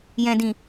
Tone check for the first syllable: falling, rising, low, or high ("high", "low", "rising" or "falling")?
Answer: low